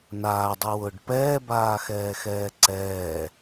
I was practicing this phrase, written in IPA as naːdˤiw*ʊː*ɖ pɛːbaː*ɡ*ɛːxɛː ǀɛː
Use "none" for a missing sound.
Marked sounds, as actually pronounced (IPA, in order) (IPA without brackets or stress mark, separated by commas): ʊː, x